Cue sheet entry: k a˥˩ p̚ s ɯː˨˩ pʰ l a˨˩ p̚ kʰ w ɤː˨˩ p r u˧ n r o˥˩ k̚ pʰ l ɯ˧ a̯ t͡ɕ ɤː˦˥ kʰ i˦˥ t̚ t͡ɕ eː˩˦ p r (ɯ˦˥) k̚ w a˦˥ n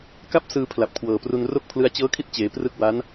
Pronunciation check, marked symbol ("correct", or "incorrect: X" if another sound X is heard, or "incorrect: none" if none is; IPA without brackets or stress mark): correct